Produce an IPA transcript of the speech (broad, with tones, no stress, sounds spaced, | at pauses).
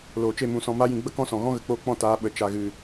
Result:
l oː˨ t͡ʃ e˦˨ m ũ˨ s ɔ̃˨ m a˧ j ĩ˨ ɡ͡b ə˦ k ɔ̃˦ s ɔ̃˨ ɣ ɔ̃˦ ɣ ə˨ k͡p oː˧ k͡p ɔ̃˦˨ t aː˨˦ ɓ ə˨ t͡ʃ a˨ ɣ ɨ˨